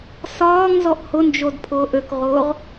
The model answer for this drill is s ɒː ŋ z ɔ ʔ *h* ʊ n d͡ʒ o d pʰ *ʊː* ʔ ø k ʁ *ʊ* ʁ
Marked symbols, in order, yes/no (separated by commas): yes, yes, no